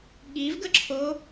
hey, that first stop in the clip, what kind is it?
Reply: implosive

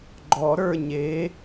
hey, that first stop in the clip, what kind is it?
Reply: click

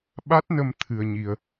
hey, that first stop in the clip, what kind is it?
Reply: implosive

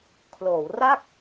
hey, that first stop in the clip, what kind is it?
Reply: aspirated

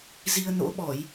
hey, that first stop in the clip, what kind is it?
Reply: implosive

